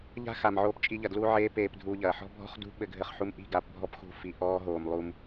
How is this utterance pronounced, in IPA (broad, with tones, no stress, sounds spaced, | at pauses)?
ʎ a̤˦ x a˨ m ʕ oː˦ p t͡ʃʼ i˦ ʎ ɐ˧ d l u˦ ʕ eː˦ p eː˧ p dʱ uː˧ ʎ ɐː˨ ħ ɔ̤˦ bʱ ɔ̤˦ χ d ṳ˦ ɓ ɘ˧ ɡʱ ɘ˧ χ ħ u˧ m ʔ i̤˦˨ ɡ a˧ p bʱ ɔ˦ p x ṳ˧ f i˨ ʔ ɔː˦ ɦ oː˨ m lˠ u˧ m